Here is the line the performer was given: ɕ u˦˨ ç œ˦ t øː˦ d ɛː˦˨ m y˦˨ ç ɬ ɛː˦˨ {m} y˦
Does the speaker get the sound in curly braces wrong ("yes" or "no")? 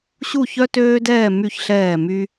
no